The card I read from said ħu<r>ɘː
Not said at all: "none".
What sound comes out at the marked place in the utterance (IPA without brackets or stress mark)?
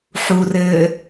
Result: r